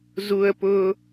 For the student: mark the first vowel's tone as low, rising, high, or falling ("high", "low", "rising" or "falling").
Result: low